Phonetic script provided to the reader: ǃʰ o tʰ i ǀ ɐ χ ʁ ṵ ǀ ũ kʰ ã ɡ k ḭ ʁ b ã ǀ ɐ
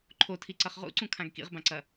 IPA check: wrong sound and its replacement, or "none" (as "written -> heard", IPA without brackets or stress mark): none